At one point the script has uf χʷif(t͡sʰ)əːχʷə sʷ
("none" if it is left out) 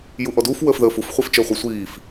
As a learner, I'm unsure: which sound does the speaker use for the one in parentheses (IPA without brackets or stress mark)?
t͡ʃ